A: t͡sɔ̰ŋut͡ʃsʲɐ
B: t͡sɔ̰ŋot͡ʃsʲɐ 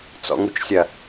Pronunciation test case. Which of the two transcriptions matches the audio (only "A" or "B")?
A